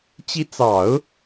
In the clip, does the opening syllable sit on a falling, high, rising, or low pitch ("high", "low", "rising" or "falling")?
rising